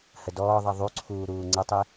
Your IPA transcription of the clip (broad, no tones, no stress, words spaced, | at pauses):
hədɔːðˤi ðˤuǀʰuː ɾuːŋ͡ǀətˤi